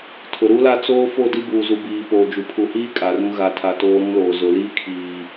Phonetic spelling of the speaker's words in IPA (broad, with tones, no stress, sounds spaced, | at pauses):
tʰ ʊ˨ ɾ u˦ l a˦ t͡s oː˦ f o˦˨ d i˦ b uː˨ z u˨ b iː˨ p oː˨ d͡ʒ u˨ pʰ u˨ h iː˦ kʼ a˨ r ũ˦ ɣ a˨ tʰ a˨ t oː˦ ɾ ũ˦ l oː˨ z ʊ˨ l iː˦ kʰ iː˨